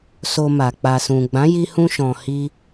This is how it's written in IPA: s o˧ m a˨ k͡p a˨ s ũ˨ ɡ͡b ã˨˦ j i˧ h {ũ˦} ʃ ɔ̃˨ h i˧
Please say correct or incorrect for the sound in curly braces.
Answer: incorrect